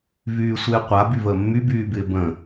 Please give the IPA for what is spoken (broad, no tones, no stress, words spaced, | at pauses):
vyːsʷɪːqʷa byvəːmːy byːbɪːbə̃